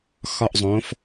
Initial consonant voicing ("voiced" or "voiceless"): voiceless